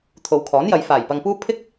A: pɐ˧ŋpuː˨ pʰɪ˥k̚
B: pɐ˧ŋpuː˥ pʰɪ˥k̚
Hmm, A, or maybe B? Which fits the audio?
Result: B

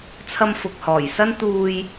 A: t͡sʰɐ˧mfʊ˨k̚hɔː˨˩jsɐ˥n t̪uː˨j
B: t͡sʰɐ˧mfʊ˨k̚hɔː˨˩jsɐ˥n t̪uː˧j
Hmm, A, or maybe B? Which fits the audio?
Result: B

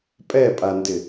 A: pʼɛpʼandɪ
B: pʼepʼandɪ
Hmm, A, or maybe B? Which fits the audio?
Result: A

